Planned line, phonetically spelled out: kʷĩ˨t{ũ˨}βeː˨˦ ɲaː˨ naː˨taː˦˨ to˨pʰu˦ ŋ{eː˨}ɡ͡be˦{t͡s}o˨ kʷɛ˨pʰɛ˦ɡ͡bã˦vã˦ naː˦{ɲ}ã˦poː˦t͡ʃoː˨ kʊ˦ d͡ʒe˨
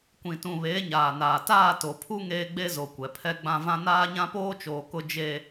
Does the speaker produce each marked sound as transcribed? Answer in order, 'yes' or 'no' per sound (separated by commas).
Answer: yes, no, no, yes